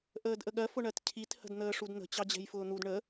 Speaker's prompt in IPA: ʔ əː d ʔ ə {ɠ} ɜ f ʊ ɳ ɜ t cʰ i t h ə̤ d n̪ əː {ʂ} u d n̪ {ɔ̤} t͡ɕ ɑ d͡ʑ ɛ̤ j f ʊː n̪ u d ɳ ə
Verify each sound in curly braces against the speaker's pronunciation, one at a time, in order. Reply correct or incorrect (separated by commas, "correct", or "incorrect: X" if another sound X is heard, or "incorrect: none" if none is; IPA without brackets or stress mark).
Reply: correct, correct, incorrect: ə̤